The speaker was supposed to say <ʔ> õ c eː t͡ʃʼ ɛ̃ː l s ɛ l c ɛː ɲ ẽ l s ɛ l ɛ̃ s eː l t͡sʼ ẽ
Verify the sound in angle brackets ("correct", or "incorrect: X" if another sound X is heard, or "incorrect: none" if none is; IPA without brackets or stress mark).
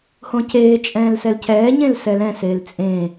incorrect: h